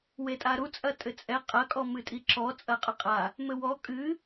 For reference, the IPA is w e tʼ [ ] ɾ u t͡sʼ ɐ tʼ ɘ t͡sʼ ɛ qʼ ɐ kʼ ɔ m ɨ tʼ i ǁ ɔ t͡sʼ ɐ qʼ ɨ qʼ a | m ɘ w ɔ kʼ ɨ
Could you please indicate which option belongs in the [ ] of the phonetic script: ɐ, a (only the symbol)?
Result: a